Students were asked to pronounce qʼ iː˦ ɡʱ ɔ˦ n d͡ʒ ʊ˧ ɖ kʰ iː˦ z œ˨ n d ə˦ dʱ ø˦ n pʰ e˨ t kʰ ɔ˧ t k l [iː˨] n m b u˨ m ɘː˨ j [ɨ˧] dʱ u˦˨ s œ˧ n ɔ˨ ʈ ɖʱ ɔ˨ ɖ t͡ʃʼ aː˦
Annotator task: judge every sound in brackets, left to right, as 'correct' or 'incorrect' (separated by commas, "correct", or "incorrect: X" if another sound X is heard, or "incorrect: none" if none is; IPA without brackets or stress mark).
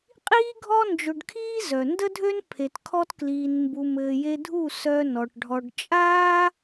correct, incorrect: e˧